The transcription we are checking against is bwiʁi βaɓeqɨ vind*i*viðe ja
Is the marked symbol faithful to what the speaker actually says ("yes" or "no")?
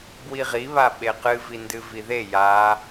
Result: no